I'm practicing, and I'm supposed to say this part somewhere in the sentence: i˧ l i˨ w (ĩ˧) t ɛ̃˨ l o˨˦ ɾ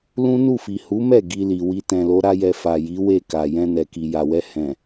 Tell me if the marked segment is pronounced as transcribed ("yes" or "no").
no